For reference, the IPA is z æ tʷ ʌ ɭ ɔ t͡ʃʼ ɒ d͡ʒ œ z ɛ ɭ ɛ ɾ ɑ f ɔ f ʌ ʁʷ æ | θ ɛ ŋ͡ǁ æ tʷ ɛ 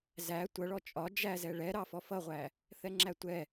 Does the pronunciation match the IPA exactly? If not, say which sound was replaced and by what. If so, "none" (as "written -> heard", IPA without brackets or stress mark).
œ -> æ